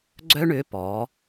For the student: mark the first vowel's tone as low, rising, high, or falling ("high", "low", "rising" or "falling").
high